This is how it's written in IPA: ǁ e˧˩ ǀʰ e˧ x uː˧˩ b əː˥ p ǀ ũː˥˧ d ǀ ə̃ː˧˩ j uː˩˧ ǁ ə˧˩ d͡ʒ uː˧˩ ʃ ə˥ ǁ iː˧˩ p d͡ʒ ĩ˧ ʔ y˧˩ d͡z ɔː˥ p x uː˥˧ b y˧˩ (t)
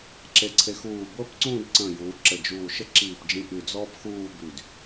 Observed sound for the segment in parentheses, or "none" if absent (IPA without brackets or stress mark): d